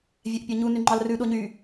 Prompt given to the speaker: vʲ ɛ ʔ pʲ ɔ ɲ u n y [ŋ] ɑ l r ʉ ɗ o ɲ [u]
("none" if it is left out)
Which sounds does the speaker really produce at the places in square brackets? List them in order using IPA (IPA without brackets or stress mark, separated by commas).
ŋ͡ǃ, y